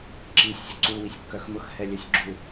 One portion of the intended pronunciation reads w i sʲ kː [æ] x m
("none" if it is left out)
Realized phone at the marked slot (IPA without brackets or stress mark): œ